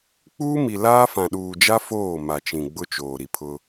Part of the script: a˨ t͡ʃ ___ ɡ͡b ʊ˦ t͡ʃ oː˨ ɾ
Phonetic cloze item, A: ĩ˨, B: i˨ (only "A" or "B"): A